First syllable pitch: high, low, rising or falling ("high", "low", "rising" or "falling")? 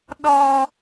high